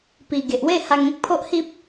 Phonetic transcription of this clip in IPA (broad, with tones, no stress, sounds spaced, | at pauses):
p i˨˩ ɡ e˨ ʔ w e˥˧ h a˧ ŋ ẽ˦ k̚ pʰ o˦ ʔ h i˦ p̚